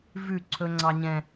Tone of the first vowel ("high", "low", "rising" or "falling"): falling